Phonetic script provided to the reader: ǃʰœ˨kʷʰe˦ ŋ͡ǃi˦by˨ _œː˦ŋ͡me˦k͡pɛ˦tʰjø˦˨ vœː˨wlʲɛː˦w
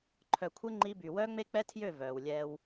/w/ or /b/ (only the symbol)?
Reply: w